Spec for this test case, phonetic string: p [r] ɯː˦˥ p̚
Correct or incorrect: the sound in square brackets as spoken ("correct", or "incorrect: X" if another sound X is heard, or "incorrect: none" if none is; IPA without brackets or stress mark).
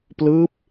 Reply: incorrect: l